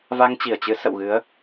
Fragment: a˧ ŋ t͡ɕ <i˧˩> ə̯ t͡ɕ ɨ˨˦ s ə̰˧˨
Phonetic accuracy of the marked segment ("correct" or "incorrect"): correct